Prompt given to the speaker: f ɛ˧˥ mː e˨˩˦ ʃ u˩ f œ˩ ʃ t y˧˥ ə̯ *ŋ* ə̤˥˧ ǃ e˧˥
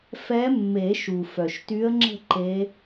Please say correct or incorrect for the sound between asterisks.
incorrect